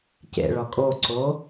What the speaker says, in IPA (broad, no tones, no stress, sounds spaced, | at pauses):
c ḛ ɭ ɒ kʼ o ǀ o